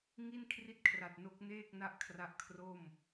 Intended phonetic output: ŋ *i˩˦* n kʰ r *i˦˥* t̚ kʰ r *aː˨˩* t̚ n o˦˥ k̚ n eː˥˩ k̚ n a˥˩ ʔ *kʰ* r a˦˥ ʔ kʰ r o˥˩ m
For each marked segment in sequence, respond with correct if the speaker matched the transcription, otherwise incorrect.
incorrect, incorrect, incorrect, correct

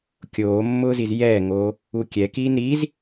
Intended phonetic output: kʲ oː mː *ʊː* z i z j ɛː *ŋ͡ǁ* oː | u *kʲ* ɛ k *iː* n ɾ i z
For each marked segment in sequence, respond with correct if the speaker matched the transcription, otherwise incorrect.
correct, incorrect, correct, correct

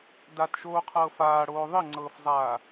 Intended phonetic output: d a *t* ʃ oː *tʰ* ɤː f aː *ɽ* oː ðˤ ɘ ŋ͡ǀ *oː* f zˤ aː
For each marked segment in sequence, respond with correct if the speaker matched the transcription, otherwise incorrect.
correct, incorrect, correct, incorrect

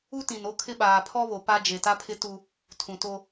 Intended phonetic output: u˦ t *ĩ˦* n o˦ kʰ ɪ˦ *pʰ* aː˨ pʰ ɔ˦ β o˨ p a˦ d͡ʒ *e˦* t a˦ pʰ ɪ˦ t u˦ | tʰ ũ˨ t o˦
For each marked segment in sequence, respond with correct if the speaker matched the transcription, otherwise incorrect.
incorrect, incorrect, incorrect

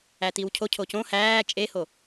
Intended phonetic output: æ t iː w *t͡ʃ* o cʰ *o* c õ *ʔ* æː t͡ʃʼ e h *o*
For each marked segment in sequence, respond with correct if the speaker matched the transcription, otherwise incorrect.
incorrect, correct, incorrect, correct

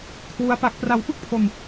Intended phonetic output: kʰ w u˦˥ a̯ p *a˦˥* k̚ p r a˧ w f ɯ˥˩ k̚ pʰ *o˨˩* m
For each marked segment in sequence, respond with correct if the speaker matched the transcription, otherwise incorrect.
correct, incorrect

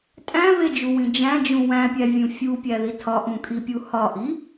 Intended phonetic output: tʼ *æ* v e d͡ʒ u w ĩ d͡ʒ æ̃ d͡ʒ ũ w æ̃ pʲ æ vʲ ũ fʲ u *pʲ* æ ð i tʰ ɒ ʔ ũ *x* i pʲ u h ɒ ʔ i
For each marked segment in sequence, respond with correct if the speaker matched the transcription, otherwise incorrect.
incorrect, correct, incorrect

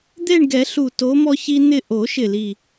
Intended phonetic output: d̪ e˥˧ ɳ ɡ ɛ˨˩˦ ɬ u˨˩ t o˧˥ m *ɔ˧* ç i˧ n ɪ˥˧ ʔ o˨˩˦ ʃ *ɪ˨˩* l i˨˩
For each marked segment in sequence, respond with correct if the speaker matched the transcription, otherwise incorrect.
correct, correct

